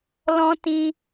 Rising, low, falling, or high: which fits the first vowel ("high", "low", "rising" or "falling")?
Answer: high